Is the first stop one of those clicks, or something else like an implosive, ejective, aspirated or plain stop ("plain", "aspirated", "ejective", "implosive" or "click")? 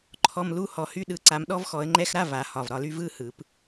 click